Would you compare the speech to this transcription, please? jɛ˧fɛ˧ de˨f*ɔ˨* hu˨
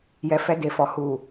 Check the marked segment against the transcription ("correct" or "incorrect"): correct